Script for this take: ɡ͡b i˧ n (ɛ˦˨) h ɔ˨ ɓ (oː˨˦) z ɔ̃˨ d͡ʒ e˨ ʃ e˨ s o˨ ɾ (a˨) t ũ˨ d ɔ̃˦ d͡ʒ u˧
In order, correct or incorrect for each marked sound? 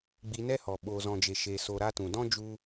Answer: incorrect, incorrect, incorrect

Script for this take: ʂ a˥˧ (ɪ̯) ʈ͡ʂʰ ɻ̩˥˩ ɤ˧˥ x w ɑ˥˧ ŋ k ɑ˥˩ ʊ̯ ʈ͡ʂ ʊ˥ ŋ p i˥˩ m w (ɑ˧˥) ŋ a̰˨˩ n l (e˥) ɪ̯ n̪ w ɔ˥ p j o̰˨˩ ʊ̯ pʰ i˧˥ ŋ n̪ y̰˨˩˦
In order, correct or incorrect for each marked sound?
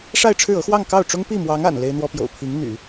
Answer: correct, correct, correct

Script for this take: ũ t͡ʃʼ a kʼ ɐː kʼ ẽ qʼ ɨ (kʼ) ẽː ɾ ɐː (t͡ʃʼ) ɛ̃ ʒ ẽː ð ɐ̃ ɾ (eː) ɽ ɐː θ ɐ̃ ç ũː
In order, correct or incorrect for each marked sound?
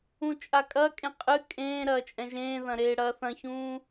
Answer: correct, correct, correct

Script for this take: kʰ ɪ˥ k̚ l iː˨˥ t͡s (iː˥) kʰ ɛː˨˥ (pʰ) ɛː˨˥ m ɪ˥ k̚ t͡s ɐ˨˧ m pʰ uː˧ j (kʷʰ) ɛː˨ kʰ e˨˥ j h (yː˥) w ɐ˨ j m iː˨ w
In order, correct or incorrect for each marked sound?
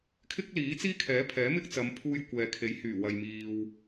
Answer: correct, correct, incorrect, incorrect

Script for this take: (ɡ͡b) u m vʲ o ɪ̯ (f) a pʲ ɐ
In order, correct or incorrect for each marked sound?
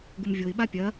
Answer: incorrect, incorrect

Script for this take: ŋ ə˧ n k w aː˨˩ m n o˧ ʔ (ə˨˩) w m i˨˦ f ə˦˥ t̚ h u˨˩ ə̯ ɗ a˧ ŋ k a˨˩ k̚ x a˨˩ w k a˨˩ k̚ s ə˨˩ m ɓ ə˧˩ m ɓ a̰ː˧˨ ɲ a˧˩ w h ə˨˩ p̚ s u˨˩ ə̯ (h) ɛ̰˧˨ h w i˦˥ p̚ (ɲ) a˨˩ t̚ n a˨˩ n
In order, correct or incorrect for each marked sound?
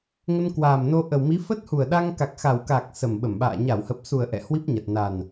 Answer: correct, incorrect, correct

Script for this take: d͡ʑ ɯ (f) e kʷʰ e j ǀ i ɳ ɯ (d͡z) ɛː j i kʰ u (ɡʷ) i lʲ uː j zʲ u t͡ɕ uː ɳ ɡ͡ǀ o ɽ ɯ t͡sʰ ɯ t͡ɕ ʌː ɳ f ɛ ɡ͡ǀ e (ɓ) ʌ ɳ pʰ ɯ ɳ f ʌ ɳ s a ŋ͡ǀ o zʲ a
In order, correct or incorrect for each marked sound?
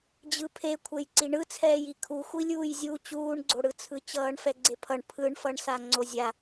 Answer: incorrect, incorrect, incorrect, incorrect

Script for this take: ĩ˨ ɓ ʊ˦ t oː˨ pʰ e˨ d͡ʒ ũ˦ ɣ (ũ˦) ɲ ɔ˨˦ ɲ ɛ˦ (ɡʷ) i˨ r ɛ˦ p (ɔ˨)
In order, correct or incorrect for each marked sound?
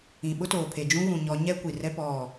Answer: incorrect, incorrect, incorrect

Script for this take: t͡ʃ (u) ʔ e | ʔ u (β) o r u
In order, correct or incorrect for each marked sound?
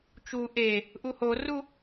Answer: correct, incorrect

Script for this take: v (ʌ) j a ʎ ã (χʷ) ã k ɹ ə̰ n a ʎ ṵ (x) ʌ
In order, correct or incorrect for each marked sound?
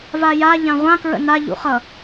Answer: incorrect, incorrect, incorrect

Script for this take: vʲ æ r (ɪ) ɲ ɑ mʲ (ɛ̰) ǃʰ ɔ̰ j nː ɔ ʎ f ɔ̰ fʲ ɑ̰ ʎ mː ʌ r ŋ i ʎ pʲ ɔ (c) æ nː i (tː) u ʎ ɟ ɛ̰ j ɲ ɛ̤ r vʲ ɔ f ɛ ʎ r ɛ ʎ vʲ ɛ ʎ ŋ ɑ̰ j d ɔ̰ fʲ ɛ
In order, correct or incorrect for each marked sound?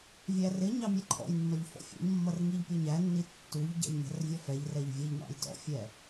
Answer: correct, incorrect, incorrect, correct

